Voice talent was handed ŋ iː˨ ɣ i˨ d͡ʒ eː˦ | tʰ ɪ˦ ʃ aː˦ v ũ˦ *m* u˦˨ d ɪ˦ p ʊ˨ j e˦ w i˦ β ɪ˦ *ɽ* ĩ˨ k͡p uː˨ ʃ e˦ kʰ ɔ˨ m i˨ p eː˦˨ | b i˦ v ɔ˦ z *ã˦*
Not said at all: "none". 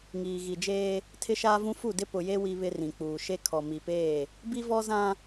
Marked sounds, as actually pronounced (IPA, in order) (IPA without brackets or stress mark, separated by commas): f, r, ã˦